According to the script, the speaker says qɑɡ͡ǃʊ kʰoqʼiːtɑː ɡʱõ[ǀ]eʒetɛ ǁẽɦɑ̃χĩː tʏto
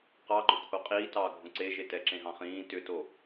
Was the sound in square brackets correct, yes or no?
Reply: yes